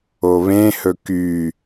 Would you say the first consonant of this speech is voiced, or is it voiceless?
voiced